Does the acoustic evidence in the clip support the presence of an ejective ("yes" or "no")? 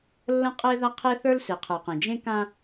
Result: yes